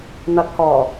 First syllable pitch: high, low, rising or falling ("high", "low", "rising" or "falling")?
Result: rising